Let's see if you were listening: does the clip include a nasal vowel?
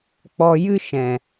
yes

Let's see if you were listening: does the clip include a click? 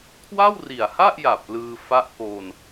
no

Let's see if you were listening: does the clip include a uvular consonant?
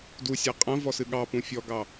yes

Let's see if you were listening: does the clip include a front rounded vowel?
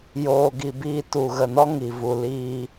no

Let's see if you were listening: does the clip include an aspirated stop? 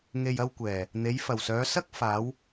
no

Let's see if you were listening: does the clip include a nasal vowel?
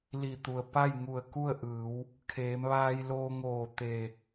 no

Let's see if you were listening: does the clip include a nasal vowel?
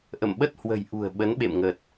no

